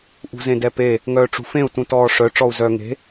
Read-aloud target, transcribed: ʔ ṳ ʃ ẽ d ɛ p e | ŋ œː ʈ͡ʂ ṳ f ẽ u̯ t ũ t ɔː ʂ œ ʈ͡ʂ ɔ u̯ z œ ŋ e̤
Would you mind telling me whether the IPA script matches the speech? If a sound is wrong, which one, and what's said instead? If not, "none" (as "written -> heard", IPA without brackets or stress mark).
ʃ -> z